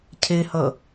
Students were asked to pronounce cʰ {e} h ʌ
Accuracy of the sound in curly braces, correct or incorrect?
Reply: correct